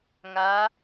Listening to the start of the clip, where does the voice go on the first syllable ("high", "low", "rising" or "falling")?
rising